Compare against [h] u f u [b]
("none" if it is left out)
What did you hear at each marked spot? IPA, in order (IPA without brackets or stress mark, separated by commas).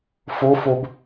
f, b